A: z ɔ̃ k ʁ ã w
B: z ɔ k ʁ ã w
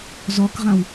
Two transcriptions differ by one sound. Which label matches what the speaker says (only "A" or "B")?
B